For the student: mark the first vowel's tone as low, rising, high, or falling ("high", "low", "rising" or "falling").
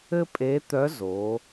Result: high